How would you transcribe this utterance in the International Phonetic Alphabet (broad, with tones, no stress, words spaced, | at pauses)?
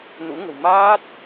nṵ˧˥ŋə̤˨˩w maː˦˥t̚